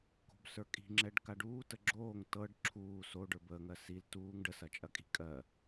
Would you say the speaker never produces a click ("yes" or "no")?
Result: no